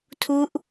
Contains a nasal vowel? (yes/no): no